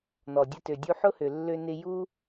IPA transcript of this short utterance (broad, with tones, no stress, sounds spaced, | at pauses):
n ɔ˩ dʲ ə˧ t ø˩ dʲ u˧ ħ ʊ˥ h ø˩ lː ø˧ n ɪ˧ j u˥